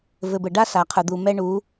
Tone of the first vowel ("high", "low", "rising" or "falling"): low